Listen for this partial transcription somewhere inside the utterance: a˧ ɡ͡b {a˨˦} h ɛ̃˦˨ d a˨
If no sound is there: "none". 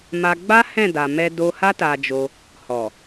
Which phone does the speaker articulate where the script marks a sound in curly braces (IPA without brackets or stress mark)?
a˦